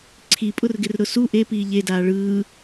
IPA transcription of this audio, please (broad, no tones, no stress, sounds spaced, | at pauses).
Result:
ǀʰ i pʼ ʊ r ɡ ɪ r ɾ ʊ s u ʔ e p iː ʎ e d aː ɭ ɯː